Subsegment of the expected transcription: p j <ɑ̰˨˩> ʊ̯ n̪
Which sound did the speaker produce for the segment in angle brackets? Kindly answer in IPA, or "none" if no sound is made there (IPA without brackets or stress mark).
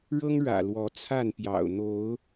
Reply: ɑ̰˨˩